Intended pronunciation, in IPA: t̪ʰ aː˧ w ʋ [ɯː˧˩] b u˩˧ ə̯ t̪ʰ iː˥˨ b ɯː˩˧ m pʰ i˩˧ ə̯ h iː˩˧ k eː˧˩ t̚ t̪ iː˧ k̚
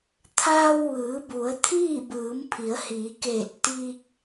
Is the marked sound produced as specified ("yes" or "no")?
no